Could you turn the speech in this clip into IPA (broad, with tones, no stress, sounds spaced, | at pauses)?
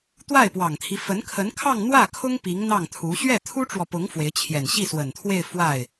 t̪ w a˥˩ ɪ̯ p w ɑ˨˩ ŋ t̪ʰ i˦ f ə˧˥ n kʰ ə˧˥ n kʰ ɑ˥˧ ŋ n̪ w ä˥˩ kʰ ʊ˥ ŋ p i˧˥ ŋ n̪ ɑ˥˩ ŋ t̪ʰ u˧˥ ɕ ɥ ɛ˥˩ t̪ʰ u˥ ʈ͡ʂ w ɔ˨ p ʊ˧˥ ŋ f w e˧˥ ɪ̯ t͡ɕʰ j ɛ˨˩ n ɕ i˥˩ s w ə˨˩ n t̪ʰ w e˥˧ ɪ̯ f w a˥˩ ɪ̯